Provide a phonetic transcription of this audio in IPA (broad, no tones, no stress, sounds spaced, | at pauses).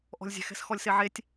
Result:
ʔ ɔ̤ lʲ zʲ ɛ̤ x ɛ̤ s x ɔ lʲ s e ʕ e tʲ